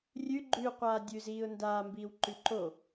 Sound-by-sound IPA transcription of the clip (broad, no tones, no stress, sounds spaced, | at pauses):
rʲ ʉ ɡ͡ǃ ʉ qʷ aː dʲ ʉ z iː ʊ̯ n d aː m b iː w ǃ ʉ ǃ o